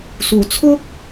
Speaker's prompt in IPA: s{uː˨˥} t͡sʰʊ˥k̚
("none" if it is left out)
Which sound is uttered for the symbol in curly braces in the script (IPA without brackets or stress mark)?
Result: uː˨˩